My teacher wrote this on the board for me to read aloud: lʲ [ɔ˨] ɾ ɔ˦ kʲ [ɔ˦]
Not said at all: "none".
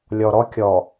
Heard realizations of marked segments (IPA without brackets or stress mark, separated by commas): ɔ˨, ɔ˨